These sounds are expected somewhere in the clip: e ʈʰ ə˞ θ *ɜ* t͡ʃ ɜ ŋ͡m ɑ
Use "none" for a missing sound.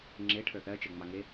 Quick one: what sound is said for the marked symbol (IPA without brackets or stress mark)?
ɜ